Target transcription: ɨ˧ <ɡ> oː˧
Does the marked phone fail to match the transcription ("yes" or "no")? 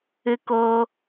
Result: yes